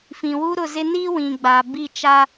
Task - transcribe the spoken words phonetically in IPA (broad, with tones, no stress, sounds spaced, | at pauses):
f ĩ˨ w u˦ ɾ ʊ˦˨ z ɪ˦ n i˦ w ĩ˨ ɡ͡b a˨ b i˦˨ t͡ʃ a˦